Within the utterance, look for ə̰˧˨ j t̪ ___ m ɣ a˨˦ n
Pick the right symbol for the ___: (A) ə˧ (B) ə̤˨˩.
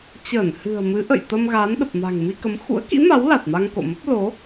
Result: A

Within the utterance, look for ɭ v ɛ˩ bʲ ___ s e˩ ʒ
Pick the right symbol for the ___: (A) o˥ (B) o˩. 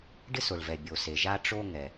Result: B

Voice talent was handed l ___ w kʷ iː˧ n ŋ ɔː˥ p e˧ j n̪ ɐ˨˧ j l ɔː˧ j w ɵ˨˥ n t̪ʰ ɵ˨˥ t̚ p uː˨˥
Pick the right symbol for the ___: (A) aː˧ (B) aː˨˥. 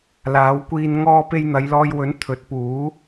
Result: B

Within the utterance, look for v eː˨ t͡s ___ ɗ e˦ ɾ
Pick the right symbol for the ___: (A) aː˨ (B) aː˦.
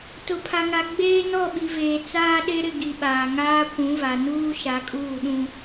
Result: B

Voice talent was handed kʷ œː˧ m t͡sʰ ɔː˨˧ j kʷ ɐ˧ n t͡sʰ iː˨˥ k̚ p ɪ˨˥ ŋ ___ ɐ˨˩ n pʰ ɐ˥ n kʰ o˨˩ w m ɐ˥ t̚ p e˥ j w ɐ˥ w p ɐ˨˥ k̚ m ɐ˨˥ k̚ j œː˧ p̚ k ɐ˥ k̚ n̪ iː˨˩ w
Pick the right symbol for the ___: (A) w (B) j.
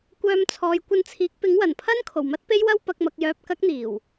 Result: A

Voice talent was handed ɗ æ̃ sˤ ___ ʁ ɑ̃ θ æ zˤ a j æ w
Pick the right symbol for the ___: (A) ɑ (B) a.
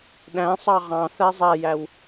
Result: A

